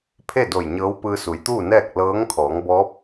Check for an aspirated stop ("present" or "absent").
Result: present